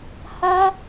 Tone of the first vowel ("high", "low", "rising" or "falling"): high